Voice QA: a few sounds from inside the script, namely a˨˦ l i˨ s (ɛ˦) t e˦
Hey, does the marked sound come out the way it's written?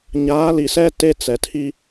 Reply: yes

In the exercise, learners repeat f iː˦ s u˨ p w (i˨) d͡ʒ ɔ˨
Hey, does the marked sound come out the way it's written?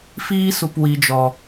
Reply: yes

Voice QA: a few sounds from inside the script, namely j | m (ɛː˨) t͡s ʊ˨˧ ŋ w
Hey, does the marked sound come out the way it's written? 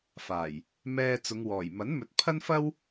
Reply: no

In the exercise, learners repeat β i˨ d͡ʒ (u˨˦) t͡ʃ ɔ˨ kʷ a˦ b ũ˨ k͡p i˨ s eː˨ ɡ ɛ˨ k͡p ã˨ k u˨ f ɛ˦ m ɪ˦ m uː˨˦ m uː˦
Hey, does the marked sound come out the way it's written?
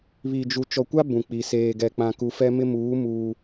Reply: no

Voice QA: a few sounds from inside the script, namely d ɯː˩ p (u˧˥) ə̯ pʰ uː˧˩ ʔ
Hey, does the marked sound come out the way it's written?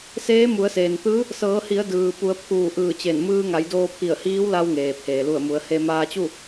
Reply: no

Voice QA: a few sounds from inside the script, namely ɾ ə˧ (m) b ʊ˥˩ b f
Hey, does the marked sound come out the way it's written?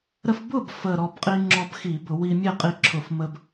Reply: no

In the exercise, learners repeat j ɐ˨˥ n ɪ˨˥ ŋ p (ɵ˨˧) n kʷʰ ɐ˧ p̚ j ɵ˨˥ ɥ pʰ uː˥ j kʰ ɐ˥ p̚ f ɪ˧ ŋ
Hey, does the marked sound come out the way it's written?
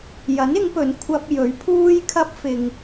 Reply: no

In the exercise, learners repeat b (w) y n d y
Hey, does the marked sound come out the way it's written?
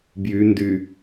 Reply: no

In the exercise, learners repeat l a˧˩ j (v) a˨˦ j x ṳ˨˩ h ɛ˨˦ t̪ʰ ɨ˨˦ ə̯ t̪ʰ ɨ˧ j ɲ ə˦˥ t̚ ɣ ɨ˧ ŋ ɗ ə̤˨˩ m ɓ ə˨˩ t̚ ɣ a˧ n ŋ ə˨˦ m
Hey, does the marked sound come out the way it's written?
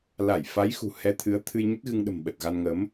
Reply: no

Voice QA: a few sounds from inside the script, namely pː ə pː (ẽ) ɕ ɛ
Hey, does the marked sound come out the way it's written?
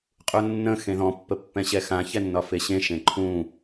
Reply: no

